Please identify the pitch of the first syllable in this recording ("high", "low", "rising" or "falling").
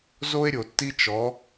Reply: high